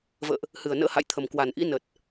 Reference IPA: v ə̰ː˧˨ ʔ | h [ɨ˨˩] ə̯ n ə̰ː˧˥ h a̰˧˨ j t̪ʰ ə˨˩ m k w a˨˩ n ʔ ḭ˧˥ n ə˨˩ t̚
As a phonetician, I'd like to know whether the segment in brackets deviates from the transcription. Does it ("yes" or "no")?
no